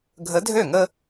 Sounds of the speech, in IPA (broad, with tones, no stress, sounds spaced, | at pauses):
ɡʱ ə˨˥ dʱ ø˥˩ ŋ ə˦